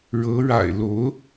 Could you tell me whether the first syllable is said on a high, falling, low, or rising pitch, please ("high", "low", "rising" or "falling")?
rising